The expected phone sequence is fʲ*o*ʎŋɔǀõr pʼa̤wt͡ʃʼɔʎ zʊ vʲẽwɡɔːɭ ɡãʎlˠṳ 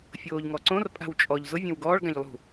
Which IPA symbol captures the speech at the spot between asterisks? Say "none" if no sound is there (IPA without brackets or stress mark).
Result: oː